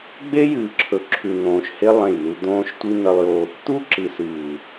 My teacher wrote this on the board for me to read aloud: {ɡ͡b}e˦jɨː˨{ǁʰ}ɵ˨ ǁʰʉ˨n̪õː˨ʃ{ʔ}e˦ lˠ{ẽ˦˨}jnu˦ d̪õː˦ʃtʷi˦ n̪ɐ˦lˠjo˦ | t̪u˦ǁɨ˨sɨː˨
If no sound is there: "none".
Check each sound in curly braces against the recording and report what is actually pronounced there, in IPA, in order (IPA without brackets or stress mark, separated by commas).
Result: ɡ͡b, ǁʰ, h, ẽ˦˨